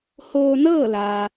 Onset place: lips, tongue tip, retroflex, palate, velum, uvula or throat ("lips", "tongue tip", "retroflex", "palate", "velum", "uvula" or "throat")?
throat